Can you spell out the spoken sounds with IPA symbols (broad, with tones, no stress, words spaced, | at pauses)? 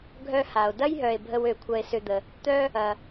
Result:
ɡʱœ˦ha˩o̯ dɐ˦jɦœ˩e̯bʱə˨w ø˩kʷʰɐ˨e̯sʏ˨d̪ə˩ | t̪œ˦ | ɐ˩